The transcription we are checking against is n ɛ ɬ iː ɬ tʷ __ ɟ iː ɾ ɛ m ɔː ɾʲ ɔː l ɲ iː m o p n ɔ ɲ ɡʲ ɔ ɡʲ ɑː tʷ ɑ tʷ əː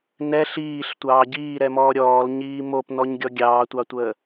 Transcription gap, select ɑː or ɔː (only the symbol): ɑː